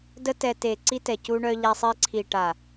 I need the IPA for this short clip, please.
d ə˦ t ɛ˧ t e˨ ǀ i˧ t ɛ˨ c u˧ ɳ œ˧ ʎ a˧ sˤ i˧ ǀʰ i˨ ʈ a˨

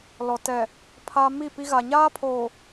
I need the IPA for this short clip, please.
l ɔ˨ t ɛ˨ | pʰ a˦ m i˦˨ p i˦ ɣ a˨ ɲ aː˦ pʰ oː˨

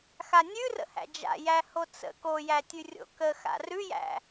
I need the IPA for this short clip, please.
x a nʲ ʉ r ə̰ h æ̰ d͡ʒ a̰ j æ h o t͡s ə̰ k o j æ tʲ ʉ rʲ o̰ k ə x a̰ r ʉ j æ̰

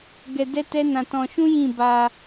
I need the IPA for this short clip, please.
ɡ ɛ˧ d ɛ˦ t ɛ˦ n ã˧ t ɔ̃˧ ʃ ũ˦ j ĩ˦˨ b a˧

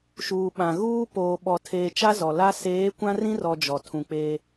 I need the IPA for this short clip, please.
ʃ uː˨ ɓ ã˨ ɣ uː˦ p oː˨ ɓ ɔ˨ tʰ eː˨ t͡ʃ a˦ z ɔ˨ l a˦ s eː˨˦ kʷ ã˦ r ĩ˦ r ɔ˨ d͡ʒ ɔ˨ tʰ ũ˨ k͡p eː˦

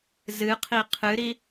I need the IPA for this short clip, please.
z ɨ qʰ i qʰ ɨ ɾ i

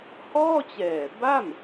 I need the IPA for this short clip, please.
h ɔː˥˩ t͡ɕ ɛː˨˩ b a˥˩ m

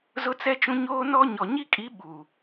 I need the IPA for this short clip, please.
z ʊ˦ t͡s ɛ˦ t͡ʃ ũ˦ ɲ oː˦ n ɔ˦ ɲ ɔ˨ ɲ i˦ kʼ i˨˦ ɓ uː˨

